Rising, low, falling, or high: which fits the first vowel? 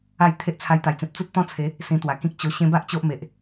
falling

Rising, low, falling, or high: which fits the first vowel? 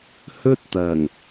high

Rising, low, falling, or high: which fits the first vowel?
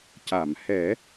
low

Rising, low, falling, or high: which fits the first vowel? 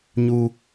high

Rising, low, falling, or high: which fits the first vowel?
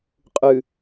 low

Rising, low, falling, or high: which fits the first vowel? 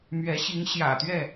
rising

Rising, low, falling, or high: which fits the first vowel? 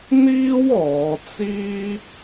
high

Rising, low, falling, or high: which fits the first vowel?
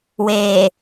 low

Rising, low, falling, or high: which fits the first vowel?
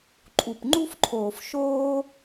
low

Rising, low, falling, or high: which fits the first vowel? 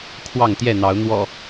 falling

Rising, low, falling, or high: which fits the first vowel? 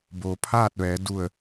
low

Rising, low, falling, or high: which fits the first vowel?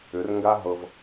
rising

